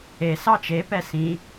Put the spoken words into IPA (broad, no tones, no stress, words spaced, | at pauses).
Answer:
e sɑt͡ʃe pɛsĩ